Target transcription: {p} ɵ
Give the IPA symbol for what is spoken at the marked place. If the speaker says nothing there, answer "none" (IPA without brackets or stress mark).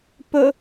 p